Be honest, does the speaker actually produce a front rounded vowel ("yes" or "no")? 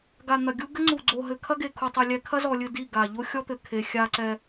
no